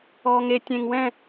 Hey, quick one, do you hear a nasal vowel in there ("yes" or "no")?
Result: yes